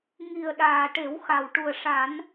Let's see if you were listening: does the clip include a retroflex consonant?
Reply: yes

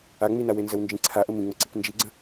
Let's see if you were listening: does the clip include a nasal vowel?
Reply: yes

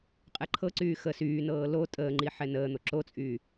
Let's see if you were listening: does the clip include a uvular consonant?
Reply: yes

